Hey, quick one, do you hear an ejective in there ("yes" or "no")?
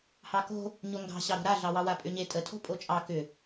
yes